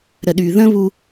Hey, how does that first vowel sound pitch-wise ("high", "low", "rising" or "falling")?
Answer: low